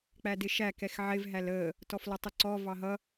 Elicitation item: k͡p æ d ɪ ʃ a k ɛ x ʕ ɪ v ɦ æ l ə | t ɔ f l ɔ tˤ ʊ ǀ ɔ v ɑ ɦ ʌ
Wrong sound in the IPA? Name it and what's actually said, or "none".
a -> æ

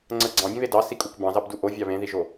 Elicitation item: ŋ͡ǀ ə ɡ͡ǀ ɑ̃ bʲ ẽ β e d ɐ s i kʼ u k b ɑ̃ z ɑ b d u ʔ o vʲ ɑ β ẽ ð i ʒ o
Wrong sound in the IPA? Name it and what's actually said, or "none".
ɐ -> ɑ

